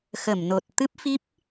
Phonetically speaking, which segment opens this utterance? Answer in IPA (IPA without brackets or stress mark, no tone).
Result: x